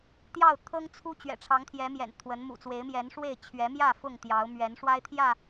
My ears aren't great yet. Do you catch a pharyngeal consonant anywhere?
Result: no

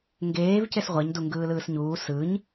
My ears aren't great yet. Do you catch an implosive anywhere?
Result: no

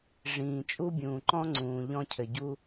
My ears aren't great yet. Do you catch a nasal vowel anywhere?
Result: yes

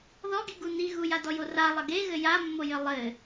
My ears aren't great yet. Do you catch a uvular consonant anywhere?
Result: no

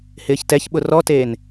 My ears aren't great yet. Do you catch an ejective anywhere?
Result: no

